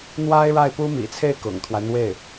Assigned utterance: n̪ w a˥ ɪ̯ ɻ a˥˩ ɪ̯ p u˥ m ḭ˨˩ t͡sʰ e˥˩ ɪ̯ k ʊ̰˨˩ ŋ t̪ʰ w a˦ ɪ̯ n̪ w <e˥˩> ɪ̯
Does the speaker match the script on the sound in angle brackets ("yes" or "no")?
yes